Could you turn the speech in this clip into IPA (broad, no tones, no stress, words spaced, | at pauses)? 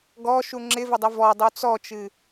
ɡɔʃu ŋ͡ǁɪvɪdˤɪ vɔdˤu t͡sɔt͡ʃɨ